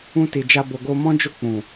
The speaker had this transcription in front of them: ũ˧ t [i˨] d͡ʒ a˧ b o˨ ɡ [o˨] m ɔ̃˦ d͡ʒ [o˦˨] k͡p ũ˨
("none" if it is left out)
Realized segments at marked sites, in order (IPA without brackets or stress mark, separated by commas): i˨, o˧, o˦˨